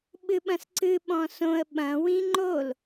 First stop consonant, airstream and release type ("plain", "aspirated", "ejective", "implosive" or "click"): implosive